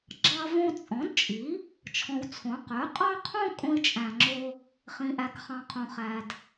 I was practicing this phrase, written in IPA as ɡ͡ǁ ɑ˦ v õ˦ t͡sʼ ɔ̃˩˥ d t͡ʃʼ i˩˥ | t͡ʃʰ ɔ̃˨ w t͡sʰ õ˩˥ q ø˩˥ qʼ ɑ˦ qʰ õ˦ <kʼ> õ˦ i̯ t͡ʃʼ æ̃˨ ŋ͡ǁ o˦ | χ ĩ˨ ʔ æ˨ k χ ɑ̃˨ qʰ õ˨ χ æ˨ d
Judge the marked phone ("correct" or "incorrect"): correct